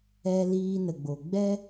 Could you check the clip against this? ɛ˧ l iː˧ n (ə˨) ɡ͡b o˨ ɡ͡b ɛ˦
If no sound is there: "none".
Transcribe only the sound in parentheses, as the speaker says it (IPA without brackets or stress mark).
ə˨